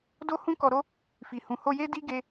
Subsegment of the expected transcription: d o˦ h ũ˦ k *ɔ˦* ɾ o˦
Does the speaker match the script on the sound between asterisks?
no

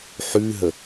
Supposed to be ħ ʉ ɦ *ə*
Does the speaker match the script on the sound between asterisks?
yes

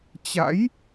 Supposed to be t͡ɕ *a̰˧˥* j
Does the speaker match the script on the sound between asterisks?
yes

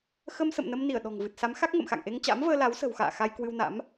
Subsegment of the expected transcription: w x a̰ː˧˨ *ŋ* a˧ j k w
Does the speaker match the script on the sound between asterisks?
no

